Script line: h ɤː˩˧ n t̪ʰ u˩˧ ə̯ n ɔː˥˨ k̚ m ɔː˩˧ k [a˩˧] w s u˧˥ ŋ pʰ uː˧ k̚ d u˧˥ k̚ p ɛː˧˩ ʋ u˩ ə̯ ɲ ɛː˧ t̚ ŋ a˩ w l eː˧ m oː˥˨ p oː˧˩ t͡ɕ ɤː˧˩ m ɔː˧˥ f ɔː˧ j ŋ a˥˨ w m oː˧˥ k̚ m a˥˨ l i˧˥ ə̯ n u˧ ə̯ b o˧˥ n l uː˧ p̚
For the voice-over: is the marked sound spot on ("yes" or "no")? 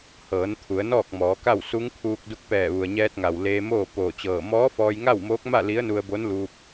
no